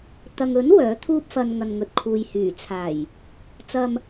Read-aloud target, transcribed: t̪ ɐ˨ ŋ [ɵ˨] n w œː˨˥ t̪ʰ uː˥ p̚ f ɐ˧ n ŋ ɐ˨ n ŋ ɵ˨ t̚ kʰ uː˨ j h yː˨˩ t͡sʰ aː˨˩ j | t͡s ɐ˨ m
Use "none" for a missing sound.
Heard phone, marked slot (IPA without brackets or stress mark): ɵ˨˥